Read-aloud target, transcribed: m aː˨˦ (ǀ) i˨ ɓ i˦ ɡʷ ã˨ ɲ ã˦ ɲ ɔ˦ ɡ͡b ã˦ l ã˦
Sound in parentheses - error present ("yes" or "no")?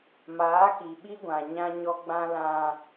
yes